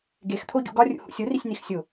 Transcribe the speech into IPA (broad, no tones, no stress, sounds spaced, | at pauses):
ɡ e x t̪ʰ o ɟ ṵ ɡ ɒ rʲ ṵ h ṵ sʲ o r i sʲ n i x sʲ o